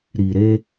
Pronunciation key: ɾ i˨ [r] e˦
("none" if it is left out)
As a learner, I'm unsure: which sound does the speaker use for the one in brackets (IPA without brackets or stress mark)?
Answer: ɾ